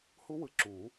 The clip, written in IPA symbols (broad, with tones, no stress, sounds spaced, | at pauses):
h u˦˥ w ɯ˨˥ ǁ u˨˩˦